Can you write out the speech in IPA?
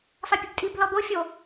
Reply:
fapʲøbtʼib lɔd̪o fʲo

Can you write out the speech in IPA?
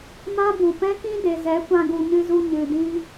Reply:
mã˦bu˨pɛ̃˦ kĩ˦de˨zɛ˨˦ kʷã˧ɡu˨ɲɨ˧zu˧ ɲɨ˨dĩ˦

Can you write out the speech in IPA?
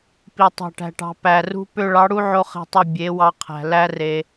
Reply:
pi˨ tˤɑ̤˨ʈæ̤˨ʈɑ̤˨ pæ˨rṳ˧ pø˦ ɭɑ˨˦ɽu˦ʕo˧ χe̤˦tˤu˦˨ bʲe˨˦wɑ˧qʰæ̤˨ læ˦re˧

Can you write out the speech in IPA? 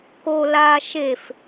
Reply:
ko laːʃef

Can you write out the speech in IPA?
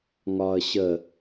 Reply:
ŋɒːə̯ɕə

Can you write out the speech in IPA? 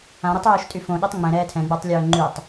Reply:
ãɾitˤoːʃtʼy fõɗetˤ ŋ͡mɛ̃ɾɛː tʰɛ̃ɡ͡batˤlʲœː ŋ͡ǃytˤ

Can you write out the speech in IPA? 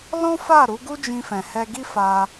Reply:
lɔ̃˦fa˦˨ ɾu˨˦ɡu˦ d͡ʒĩ˧fɛ̃˨hɛ˧ ɡi˦fa˧

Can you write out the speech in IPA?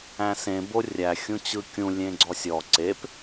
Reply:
æ̃sẽ borʲæ xʲũt͡ɕɯkʲũ lʲẽɡ͡ǀɔsʲɔ ǀep

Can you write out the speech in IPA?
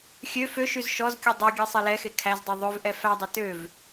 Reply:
xʲø føʃyz ʃɔzkʲu dˤøɡʲe sˤɛlɛxe kʰæzdˤu ðˤøvʔɛ fædˤɛ tøv

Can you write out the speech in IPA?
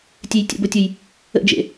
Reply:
tʲejtʲə̰bʊtʲʊj | ə̰d͡ʒḛ

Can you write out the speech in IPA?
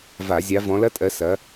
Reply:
va˧˩˧ zʲa˨˦vɔ̃˨˦lɐ˦˥tʼɜ˨˦ sɐ˨˦

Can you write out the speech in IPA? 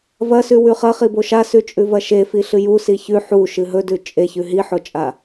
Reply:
vɐsʉwʉ χɐχibo ʃasʉt͡ʃʼʉvɐ ʃefiɬɨ jusi çʉ ħuʃɨ ɦɵdʉ t͡ʃʼeçʉ ɦiħot͡ʃʼa

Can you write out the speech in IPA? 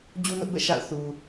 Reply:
d͡ʑu˦nʊ˦ʔbɛ̰˦˨ ʃa̰˦˨ʊ̯ θu˨

